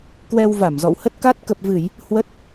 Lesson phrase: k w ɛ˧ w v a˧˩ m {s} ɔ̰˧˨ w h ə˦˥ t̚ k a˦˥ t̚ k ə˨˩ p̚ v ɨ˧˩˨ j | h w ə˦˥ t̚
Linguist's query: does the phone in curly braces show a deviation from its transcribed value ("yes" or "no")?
yes